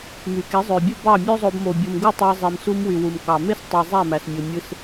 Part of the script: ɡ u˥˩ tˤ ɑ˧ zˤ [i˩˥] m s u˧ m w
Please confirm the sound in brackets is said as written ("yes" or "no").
no